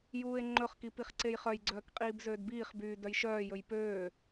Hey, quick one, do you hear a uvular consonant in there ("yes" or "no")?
yes